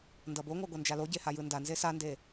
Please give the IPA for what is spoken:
ndʌboŋʷa ɡʷʌnd͡ʒaloɟe hajɯndanze sande

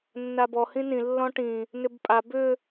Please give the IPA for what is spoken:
nːabɔ hĩnĩ lːɔ̃ʈĩ | nʏbpʼa bʏ

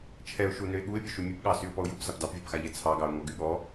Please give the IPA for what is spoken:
t͡ʃʰɛʊ̯ʃu nøɪ̯ɠuɪ̯pʲø ʃʉmʲɛpɠɑ syʊ̯pɔʊ̯jupsap dɑpvʲapxaʎɛ t͡sʰɑɡɑʊ̯ ŋɔɡyɠɔ

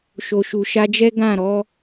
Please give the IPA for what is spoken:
ʃo˨ʃu˨ʃa˧d͡ʒɛ˦ ɡã˦˨ɾɔ˧

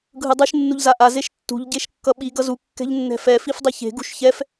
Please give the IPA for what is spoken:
ɡʱɯdˤɯʃ nːuʎzaʔa zeʃtːṳʎ ɟeʃkːʌɓi ɡʌzu kːɛ̤ʎnːɛ̤fɛ fifdˤiçe̤ ɡṳʃçɛf

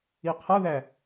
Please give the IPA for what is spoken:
iqʰʌðæ

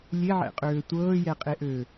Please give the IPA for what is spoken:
lʲeʕɛ̰qʼøː tʷɤːjɛqʼeʔø

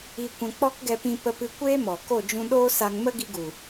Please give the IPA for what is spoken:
i˧ kʷɛ̃˧ k͡pɔ˦kɡɛ˧pĩ˧ pə˧pɨ˧ kʷeː˦mɔ˨ ko˦˨d͡ʒũ˧ɗoː˦sa˧ŋ mə˦ɡi˧ɡu˨

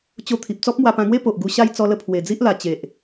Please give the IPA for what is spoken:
t͡ɕo˧t̪ʰi˨p̚ t͡sɔ˦p̚mwa˧pã˧ŋwe˦ po˨ʔ ɡu˧ɕa˥˧j t͡sɔ˧lə˧ pʰwe˨˩d͡zi˦ʔla˨˩ t͡ɕe˨ʔ

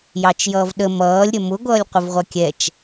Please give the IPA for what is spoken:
jɑt͡ʃjʌːvɗə mʌːlʲ ɾʲʌmʊ ɡʷʌːlʲqʷəvʁʷʌkʲɛt͡ʃ

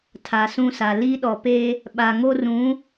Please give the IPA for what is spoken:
tʰa˨sũ˦˨sa˨ li˦ɗɔ˨pe˦ | ɓa˨ŋo˦rũ˨˦

